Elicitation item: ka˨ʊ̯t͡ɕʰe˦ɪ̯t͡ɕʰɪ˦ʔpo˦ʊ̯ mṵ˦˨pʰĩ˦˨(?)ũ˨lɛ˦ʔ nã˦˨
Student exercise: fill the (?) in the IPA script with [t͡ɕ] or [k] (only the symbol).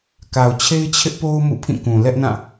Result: k